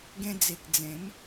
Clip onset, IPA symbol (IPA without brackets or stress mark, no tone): ɡ